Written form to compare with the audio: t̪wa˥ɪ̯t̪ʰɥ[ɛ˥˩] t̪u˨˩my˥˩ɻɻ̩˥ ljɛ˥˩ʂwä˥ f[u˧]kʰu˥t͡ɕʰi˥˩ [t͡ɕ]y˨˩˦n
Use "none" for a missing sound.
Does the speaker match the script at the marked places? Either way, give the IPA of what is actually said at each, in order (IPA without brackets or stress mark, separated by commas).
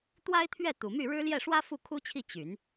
ɛ˥˩, u˥˩, t͡ɕ